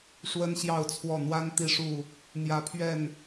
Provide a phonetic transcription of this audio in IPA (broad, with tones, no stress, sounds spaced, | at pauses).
ʂ w ə˦ n ɕ j ɑ˥˨ ʊ̯ t͡sʰ w ɔ˥˨ n̪ w a˦ n t̪ i˦ ʂ u˥˨ | n̪ j ä˨˦ pʰ ɥ ɛ˥˨ n